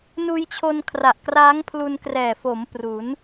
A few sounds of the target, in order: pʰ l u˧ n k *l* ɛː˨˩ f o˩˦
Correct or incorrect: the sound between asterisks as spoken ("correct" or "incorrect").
incorrect